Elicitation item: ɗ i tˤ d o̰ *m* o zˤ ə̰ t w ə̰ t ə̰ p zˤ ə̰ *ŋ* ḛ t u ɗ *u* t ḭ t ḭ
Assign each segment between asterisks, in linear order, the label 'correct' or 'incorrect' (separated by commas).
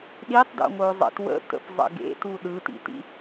incorrect, incorrect, incorrect